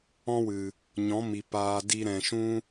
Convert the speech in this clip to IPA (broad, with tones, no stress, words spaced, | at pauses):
ɔ̃˦wɨ˨ | ɲɔ̃˨˦mi˨ paː˧di˦ɾɛ̃˧ ʃũ˦